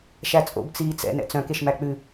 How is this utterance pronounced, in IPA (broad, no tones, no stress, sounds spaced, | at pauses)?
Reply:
ʃ æ t͡sʼ o̰ b t͡s iː t͡s ɛ̰ n ɛ̰ t͡s œ̃ k e ʃ m æ k͡p ʉ